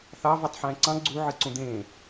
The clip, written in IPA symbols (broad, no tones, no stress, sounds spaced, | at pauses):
θ ɑ v ɛ tˤ ħ ɛ̃ː ǀ ɑ̃ ɡ͡ǀ u ʕ ɨ ǀ ũ d̪ ẽː